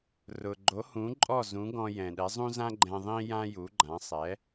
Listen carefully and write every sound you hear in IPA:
r ʊ˩ ɡ͡ǃ o˩˥ h ũ˩˥ ǃʼ ɔ˥˩ z ũ˩˥ ɡ ɔ̃˧ j ɛ̃˩ ɗ ɛ˩˥ zˤ ũ˥ z ã˥ ɡ͡ǃ ɛ̃˧ ðˤ ĩ˥ j ã˥ j u˩˥ ɡ͡ǃ ã˩˥ sˤ ɛ˩˥

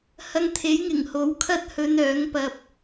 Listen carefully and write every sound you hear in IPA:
h ɐ˧ ŋ t̪ʰ e˨˥ j ŋ ɪ˨˩ ŋ h o˨˥ w kʰ ɐ˥ t̚ h ɵ˧ n œː˨˥ ŋ p ɐ˧ p̚

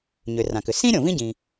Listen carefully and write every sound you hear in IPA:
ɲ ʏ˩ r ã˩ k ʏ˩ s ĩ˥ ɾʲ õ˩ v ĩ˥ ɟ ĩ˩

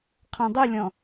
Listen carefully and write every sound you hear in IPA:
qʰ ɔ̃ dˤ u lʲ ɔ̃

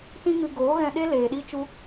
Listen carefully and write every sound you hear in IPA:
t ĩ˦ ŋ ɨ˧ ɡ oː˨˦ ɣ ɛ̃˧ ɗ e˦ l eː˨ ɗ i˦ t͡ʃ u˦

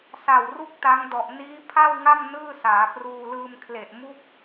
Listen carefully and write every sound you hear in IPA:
s a˨˩ w r u˥˩ k̚ t a˦˥ ŋ d ɔ˨˩ ʔ n iː˦˥ pʰ a˥˩ w ŋ a˥˩ m n ɯː˥˩ s aː˩˦ p r uː˧ l ɯː˧ m kʰ l e˨˩ ʔ m u˥˩ k̚

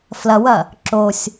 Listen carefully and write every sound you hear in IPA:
f l ɐ w ɐ | ǁ o sʲ

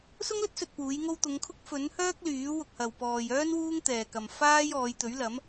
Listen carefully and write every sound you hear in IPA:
s ʊ˥ ŋ l ɵ˥ t̚ s ɵ˨ t̚ p uː˨˥ j ŋ o˥ w t̪ ʊ˨˧ ŋ kʰ ʊ˥ k̚ f ɵ˨˥ n h œː˥ k̚ l yː˨˥ w ʊ˧ k̚ h ɐ˨ w p ɔː˨ j œː˥ n w uː˥ ŋ t̪ ɛː˨ k ɐ˨ m f aː˥ j ɔː˨˧ j t̪ ɵ˨˥ ɥ l ɐ˨˥ m

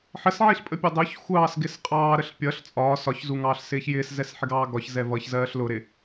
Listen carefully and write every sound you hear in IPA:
ħ ə s ʕ i ɬ pʼ ə pʲ ɔ dˤ ʊ ç xʷ ɑː s ɡ ɪ s qʼ ɑː ɾ ə ɬ pʲ ʌ ɬ t͡sʼ ɒː s ɒ ç z u ŋ ɑː ɬ s ɪː ç j ɪː s z ɛ s ħ ɪ ɡ ɑː ɡ ɒ ç z ɛ v ʌ ç z ɜː ɬ l ʊ ɾ ɪ

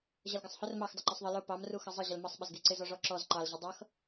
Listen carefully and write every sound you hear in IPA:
ʑ ʌ l ɡ ɪ sˤ h ʊ r m ɑ x dˤ ʊ ǃ u sˤ ðˤ ə l ʊ p ɑ m r u x ʌ zˤ ə ʑ ə l m ʌ sˤ ɓ ə z ɡ i ǀ ɪ z ɔ ʐ ɔ ǁ ɔ z ǃ ɑ l ʑ ʊ dˤ ʌ x

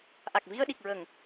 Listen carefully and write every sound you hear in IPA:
ʔ a˨˩ k̚ v i˧ ə̯ ɗ i˨˩ k̚ ɹ ə˨˩˨ ŋ

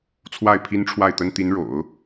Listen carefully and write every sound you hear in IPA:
t͡sʰ w a˥˩ ɪ̯ pʰ i˥ n ʈ͡ʂʰ w a˥˩ ɪ̯ t̪ ə˥ n t̪ i˧˥ n ɻ o̰˨˩˦ ʊ̯

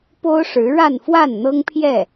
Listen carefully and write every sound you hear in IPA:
p o˥ ʊ̯ ʂ ɻ̩˧˥ ɻ a˥˧ n f w a˥˩ n n̪ ɤ˥ ŋ pʰ j ɛ˥˩

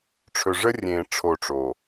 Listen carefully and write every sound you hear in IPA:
ʈ͡ʂʰ ɵ˨ ʐ ə˦ rʲ ẽː˨ ʈ͡ʂʰ o˦˨ ʈ͡ʂ o˨

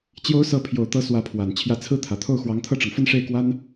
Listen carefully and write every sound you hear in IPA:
t͡ɕ j o˧˥ ʊ̯ s ɤ˧˥ pʰ j o˨˩ ʊ̯ t̪ ɤ˧˥ s w ä˧˥ pʰ w a˨˩ n t͡ɕʰ j ä˧˥ t͡sʰ ɹ̩˥˩ t̪ʰ ä˨˩ t̪ʰ o˥˩ ʊ̯ x w ɑ˧˥ ŋ t̪ʰ ɤ˥˩ ʈ͡ʂ ɤ˩ ŋ f ə˥˧ n ʂ e˥˩ ɪ̯ k w a˥ n

